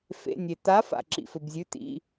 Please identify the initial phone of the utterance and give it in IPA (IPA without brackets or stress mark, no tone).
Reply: f